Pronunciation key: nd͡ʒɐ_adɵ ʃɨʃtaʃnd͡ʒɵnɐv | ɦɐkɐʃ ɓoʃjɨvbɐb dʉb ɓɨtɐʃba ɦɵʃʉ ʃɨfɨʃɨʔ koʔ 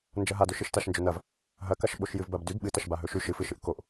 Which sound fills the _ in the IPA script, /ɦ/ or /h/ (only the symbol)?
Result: ɦ